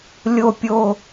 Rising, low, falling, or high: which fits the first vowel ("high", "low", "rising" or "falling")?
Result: falling